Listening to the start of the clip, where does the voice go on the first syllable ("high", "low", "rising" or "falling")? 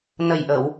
low